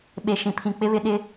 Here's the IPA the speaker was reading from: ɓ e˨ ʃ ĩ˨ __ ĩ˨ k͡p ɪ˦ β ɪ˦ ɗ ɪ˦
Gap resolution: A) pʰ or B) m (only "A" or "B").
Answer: A